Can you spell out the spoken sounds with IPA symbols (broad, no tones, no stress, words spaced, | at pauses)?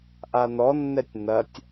ʔanɔnːɛtʲ nɐtʲ